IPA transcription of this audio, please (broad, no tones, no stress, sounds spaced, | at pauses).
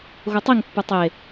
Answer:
ɣ o tˤ i ŋ pː u tˤ e